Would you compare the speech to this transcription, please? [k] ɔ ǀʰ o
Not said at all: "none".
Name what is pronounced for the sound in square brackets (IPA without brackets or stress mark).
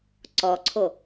ǀ